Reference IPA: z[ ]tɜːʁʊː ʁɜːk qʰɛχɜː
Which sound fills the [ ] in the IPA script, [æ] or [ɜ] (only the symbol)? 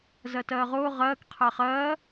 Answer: ɜ